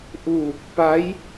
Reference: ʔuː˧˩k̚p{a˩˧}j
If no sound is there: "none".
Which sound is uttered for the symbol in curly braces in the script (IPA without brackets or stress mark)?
a˧˥